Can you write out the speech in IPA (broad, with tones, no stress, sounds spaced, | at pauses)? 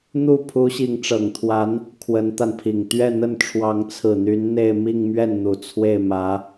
n̪ u˥˩ pʰ u˧˥ ɕ i˧˥ ŋ ʈ͡ʂ ɤ˨˩ ŋ t̪ʰ w a˧˥ n | kʰ w ə˧˥ n t̪ a˧ n pʰ i˨˩ ŋ t̪ ɥ ɛ˥˧ n̪ ə˥˩ n ʈ͡ʂʰ w ɑ˧˥ ŋ t͡sʰ ɹ̩˨˩ n̪ y˧˥ n n̪ e˥˧ ɪ̯ m i˥˧ ŋ m ɥ ɛ˥˩ n n̪ u˨˩ t͡sʰ w e˥˩ ɪ̯ m ä˧˥